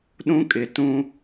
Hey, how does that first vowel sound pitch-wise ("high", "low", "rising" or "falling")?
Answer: high